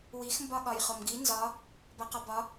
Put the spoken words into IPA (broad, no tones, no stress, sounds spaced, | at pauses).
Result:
w i x m b ɒ ɠ ɒ j χ o m ɡ i n z ɒ | b a q ɒ b ɒ